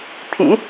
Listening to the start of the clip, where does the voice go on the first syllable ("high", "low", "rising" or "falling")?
low